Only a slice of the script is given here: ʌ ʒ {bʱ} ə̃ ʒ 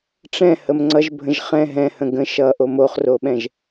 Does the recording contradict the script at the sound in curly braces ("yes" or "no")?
no